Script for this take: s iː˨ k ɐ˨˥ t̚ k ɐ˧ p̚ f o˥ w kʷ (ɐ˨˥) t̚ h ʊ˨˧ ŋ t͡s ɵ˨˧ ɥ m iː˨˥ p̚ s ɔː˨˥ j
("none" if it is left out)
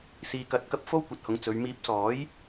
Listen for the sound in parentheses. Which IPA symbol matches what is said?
ɐ˨˥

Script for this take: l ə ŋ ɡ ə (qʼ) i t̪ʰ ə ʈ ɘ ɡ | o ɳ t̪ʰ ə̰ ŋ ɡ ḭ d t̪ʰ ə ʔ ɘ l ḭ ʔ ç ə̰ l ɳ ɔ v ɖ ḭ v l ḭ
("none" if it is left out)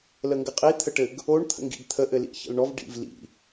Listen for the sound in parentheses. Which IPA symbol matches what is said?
qʼ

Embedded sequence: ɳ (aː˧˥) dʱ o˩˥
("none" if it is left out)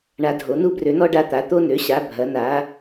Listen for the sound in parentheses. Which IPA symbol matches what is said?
a˧˥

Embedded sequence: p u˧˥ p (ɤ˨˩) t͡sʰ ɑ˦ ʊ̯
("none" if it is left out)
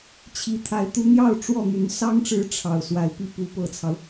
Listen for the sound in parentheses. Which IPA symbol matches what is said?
ɤ˨˩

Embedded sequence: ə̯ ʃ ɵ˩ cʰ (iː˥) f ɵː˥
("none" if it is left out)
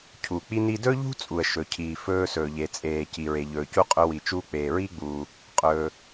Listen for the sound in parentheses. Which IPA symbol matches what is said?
iː˩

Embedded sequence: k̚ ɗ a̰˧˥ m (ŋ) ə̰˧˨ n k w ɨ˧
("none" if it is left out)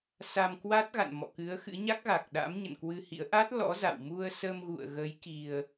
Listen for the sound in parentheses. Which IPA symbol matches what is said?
ɲ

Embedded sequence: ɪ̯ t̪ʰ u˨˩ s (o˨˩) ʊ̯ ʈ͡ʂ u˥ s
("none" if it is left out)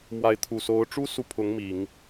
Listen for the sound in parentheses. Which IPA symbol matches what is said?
o˧˥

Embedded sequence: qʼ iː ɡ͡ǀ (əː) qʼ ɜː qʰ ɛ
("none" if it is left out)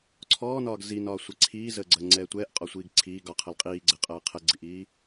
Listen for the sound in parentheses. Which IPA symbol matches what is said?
əː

